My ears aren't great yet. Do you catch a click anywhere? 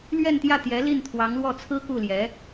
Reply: no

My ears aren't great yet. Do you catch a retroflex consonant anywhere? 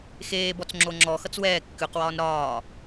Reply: no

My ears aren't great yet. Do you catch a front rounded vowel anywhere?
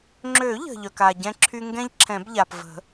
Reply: yes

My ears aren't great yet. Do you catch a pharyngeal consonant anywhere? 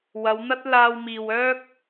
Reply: no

